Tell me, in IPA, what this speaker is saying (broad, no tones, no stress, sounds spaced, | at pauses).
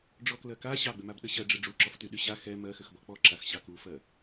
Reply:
ɖ͡ʐ ɔ k l ɜ k a ɕ ɑ ɡ͡b ʏ m a b ɗ ə ɕ ɜ ɖ͡ʐ ə ɖ͡ʐ u ǁ ɔ f t y ɗ y ɕ a x ɛ m ɜ x ʏ x b ɔ k͡p ɔ ǁ a x ɕ ɑ k u f ɜ